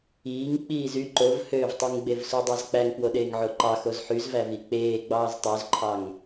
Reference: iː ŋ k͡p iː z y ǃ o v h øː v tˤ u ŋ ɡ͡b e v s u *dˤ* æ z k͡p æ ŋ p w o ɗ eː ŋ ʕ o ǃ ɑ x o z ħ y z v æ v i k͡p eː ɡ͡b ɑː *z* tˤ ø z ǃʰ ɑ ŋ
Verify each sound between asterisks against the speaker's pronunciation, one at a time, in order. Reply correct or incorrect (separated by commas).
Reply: correct, correct